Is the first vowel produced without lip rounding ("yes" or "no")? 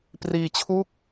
yes